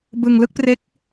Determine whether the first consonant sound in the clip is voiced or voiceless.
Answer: voiced